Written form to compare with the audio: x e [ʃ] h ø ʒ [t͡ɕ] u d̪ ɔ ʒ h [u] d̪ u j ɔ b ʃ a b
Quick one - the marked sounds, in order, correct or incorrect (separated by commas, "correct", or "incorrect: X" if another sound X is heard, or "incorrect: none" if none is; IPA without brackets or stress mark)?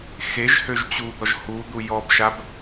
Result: incorrect: ʒ, correct, correct